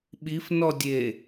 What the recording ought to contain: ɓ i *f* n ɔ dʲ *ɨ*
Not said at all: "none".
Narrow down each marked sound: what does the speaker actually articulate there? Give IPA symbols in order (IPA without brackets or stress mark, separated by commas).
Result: f, e